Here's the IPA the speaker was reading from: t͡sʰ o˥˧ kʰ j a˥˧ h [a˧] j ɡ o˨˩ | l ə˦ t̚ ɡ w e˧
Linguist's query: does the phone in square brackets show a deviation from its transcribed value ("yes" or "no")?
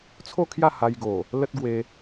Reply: no